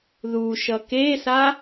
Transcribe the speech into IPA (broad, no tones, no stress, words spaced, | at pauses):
ðuʃʌ kesa